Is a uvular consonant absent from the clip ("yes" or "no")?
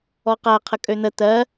no